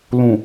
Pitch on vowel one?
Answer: low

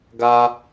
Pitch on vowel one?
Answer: high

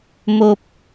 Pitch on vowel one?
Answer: low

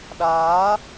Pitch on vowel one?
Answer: rising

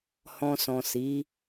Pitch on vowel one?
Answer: low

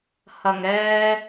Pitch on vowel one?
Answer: low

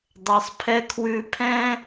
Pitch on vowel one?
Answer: low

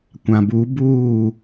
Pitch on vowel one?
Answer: low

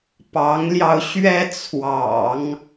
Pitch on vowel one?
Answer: rising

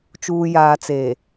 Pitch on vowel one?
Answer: low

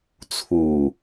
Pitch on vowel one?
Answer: low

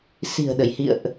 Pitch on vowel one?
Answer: low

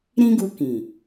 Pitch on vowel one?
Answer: high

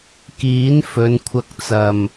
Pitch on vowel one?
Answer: rising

